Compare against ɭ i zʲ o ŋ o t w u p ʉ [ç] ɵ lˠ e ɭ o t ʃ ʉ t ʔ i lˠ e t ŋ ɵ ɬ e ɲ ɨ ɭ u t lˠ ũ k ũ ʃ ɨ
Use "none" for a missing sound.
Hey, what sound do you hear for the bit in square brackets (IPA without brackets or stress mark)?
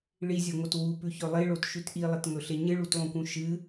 ç